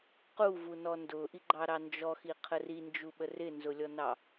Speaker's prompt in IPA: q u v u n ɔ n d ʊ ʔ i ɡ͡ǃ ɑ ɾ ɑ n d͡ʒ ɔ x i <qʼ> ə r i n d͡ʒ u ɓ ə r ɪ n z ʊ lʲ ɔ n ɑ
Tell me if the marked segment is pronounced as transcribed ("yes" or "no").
no